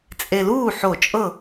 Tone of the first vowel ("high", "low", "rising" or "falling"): low